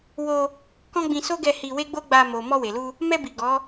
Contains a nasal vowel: yes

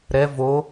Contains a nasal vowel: no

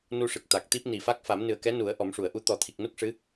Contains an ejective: no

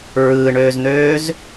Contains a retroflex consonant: yes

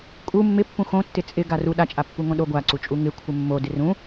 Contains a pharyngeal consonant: no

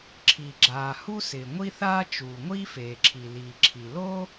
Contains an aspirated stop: yes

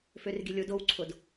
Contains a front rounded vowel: yes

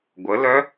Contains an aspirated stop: no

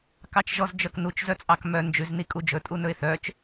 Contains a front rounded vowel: yes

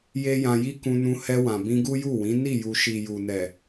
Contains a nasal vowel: yes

